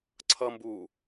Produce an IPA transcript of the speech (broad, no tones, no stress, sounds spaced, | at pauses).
ǀʰ ʌ m b u